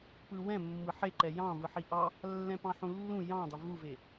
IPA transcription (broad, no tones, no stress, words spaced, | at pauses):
pɯwɛ̃ mːɯħeǃɛ jɑ̃ vɯħiʔɑ | lːɛ̃pɑ̃ħũlːũ jɑ̃dˤʏ vuve